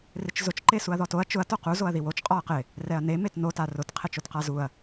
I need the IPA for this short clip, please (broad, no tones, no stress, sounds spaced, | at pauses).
r ɪ t͡ʃ z ʊ t͡ʃ ǃ e s u ɐ̯ ð ɔ t o ɐ̯ t͡ʃ ʊ ɐ̯ t o q u z o ɐ̯ ð i w o t͡ʃ qʼ ɔ ɐ̯ q ɪ | r ɛ ɐ̯ n e m e t n o t a r ʊ t qʰ e t͡ʃ o t q a z u ɐ̯